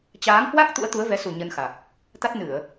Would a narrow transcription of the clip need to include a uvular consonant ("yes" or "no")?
no